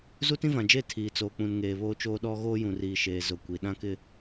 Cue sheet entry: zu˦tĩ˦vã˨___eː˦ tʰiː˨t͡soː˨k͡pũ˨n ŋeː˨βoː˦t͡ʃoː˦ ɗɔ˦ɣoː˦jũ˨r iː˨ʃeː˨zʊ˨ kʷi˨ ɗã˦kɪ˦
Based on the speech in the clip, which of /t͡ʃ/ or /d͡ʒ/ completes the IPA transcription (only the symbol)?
d͡ʒ